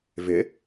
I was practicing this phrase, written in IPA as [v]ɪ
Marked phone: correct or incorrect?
correct